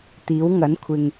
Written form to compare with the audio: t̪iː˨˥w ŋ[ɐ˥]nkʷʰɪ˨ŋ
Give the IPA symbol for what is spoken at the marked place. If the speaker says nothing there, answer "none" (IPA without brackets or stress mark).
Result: ɐ˨˥